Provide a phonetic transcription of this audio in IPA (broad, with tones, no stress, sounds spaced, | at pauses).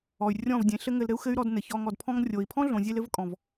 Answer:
ɔ˨ y̯ rʲ ɔ̃˦˨ v dʲ ẽ˨˦ ɬ ɘ˦ ŋ ɘ˧ l ɾ ɘ˦ u̯ x ɘ˦ y̯ ɾ ɔ˧ d n ɘ˨ ç ɔ˧ ŋ ɔ˨ d pʰ ɔ̃˧ ŋ rʲ o˨ i̯ pʰ ɔ̃˦ ɮ õ˨ zʲ e˧ l ɘ˦ v kʼ ɔ̃˨ v